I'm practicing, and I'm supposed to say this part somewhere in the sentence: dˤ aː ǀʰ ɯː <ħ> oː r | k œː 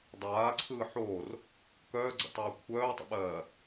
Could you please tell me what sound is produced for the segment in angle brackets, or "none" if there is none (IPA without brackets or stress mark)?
ħ